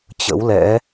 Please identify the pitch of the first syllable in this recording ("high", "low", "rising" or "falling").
rising